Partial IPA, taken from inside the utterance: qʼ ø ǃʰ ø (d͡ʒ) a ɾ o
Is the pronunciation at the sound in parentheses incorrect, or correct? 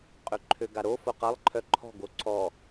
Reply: incorrect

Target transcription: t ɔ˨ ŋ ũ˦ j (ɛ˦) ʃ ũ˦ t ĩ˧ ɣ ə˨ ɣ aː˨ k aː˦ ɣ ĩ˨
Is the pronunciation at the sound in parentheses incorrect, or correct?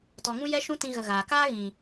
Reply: correct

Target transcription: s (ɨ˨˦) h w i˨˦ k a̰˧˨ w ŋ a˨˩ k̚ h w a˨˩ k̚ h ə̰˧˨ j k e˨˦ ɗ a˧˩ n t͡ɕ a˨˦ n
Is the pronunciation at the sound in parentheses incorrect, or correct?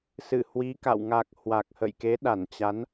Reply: incorrect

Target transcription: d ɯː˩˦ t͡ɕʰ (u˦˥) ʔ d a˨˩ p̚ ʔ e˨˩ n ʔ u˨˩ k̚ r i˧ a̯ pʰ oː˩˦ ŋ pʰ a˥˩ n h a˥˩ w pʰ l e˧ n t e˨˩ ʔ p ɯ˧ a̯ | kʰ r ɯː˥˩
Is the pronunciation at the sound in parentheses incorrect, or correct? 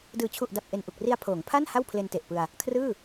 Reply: incorrect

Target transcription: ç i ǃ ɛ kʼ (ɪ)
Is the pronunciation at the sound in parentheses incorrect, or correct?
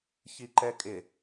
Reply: correct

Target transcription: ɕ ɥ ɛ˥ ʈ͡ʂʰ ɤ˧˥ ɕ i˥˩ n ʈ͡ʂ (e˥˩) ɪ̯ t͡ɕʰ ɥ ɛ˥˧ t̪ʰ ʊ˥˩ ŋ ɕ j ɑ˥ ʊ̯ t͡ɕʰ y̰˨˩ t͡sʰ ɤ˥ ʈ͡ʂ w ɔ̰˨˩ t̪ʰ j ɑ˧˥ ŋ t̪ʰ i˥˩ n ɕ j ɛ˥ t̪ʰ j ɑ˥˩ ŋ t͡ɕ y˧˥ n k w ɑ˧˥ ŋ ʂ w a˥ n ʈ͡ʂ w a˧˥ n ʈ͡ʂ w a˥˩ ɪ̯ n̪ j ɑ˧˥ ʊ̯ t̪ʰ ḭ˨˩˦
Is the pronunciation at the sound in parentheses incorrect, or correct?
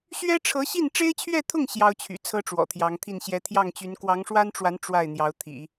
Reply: incorrect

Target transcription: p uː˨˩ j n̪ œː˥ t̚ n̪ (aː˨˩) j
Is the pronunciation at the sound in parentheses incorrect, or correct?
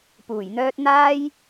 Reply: incorrect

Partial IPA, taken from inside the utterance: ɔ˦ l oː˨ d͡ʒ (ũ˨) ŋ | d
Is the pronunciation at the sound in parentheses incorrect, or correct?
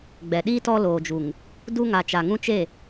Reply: incorrect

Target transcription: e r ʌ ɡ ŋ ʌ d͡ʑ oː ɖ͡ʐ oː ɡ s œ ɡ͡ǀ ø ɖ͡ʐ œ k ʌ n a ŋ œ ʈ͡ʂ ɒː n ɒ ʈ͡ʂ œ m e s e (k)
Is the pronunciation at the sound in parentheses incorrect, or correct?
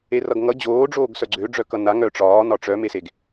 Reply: incorrect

